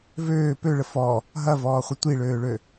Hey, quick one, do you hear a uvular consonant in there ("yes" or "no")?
yes